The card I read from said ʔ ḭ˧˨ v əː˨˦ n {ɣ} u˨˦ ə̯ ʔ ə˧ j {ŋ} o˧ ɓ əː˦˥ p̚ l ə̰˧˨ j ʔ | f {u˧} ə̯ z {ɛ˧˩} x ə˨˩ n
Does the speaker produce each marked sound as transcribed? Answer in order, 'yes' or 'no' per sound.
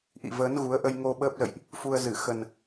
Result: yes, yes, yes, no

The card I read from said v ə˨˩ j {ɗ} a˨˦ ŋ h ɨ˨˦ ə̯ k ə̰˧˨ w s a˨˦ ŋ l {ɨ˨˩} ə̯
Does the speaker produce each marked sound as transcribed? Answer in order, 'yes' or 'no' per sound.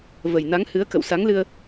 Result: no, no

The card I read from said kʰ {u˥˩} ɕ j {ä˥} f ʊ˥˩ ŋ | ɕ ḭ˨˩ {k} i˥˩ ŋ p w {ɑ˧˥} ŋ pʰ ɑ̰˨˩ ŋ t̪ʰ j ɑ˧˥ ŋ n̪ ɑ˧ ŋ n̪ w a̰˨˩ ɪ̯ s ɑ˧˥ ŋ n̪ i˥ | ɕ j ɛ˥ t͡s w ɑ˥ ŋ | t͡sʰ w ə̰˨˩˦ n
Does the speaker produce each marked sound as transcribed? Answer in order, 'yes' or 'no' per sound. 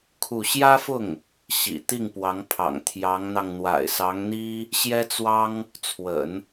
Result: yes, yes, no, yes

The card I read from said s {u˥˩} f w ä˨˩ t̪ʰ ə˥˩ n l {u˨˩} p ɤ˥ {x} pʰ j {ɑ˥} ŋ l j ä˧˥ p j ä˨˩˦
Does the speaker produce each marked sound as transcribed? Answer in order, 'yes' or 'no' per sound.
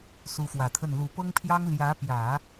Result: no, yes, no, yes

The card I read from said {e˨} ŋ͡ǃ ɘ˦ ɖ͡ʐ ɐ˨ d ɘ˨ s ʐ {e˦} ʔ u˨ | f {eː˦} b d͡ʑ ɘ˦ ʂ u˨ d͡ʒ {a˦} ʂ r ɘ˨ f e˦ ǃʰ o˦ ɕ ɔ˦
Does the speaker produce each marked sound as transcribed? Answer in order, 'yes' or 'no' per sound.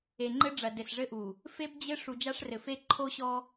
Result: yes, no, no, yes

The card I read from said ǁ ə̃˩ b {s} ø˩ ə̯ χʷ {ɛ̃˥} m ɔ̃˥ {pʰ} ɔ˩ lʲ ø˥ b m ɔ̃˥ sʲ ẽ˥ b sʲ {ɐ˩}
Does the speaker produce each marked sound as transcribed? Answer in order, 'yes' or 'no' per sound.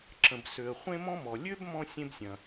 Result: yes, no, no, no

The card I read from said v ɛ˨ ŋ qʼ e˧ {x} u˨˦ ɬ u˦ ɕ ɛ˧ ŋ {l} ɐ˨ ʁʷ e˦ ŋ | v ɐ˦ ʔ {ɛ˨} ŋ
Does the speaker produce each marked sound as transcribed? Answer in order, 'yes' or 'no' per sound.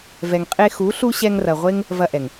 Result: yes, no, yes

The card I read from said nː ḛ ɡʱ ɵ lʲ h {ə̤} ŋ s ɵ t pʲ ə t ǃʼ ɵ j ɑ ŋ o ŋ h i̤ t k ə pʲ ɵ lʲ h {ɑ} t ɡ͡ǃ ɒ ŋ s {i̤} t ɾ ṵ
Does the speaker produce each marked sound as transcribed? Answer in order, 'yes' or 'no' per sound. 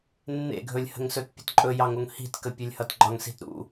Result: yes, no, yes

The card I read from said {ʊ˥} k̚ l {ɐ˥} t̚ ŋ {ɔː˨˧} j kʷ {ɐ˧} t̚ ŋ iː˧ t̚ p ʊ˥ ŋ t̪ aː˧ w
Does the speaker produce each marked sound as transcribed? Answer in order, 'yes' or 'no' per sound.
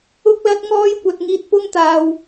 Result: yes, yes, no, yes

